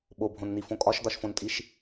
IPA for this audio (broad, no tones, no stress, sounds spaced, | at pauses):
ɓ o bʱ õ n n̪ i f õ kʼ ɒ ʃ d̪ ɒ ʃ f õ n tʼ i ʃ